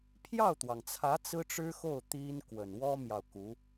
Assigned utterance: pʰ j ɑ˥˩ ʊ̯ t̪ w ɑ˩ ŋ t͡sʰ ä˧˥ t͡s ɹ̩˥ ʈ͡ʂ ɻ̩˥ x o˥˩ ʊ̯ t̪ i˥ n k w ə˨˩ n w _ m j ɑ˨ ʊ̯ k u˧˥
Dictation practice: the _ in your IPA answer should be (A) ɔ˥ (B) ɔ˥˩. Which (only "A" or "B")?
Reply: A